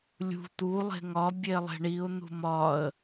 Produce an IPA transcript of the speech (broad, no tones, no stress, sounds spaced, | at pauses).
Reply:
lʲ ṳ t̪ u lˠ e̤ ŋ ɒ bʲ e lˠ e̤ ɳ i ʊ̯ n̪ ṳ m ɒ ə̯